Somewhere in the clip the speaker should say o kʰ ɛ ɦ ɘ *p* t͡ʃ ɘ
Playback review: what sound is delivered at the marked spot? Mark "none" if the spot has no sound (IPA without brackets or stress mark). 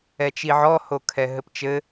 p